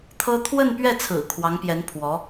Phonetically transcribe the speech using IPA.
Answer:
t̪ʰɤ˥ t̪ʰwə˥˧npɥɛ˥˩t͡sʰɹ̩˨˩ kʰwɑ˧˥ŋpjɛ˧˥n pʰwɔ˧˥

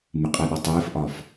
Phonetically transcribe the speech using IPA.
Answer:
mɪqʼəːɗɔ tˤɪːfʔɒf

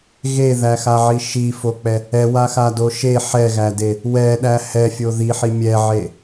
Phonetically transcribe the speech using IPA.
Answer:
ɣeðæxaʕi ʃifok͡pɛ | ɛwaxado ʃe ħɛɣæde | wɛɗæ hɛfʲo ðiħi mʲɛʕe

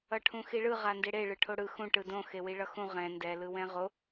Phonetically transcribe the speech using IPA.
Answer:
ʌʈʰũxiɭɯ ʁandeɽe ɭɯʈʰoɽɯ xũ ʈɯdõ xewiɭʌxũ ʁɛ̃ ndɛ lɯwɛ̃ʁo

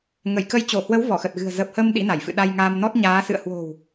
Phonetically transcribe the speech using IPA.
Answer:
ŋə˧˩jkə˨˦jt͡ɕo˧˩hwə˨˦w vɔ˧˩xə˨˩t̚ɣɨ̤˨˩ə̯ zəː˨˩p̚həː˧m ɗḭ˧˥na˧˩j fɨ̰˧˨ɗa˧jŋaː˧m nɔ˦˥t̚ɲaː˨˦sɨ̰˧˨ə̯ hwo̤˨˩w

